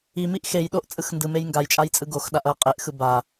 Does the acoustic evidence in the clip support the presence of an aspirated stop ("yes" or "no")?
no